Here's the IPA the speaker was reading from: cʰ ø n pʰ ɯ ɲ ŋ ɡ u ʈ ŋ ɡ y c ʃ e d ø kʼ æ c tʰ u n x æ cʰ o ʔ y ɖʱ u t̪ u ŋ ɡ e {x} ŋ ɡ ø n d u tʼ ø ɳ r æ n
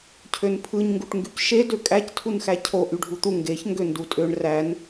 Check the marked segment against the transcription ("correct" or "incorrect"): incorrect